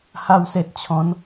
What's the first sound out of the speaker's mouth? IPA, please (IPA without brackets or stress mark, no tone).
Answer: h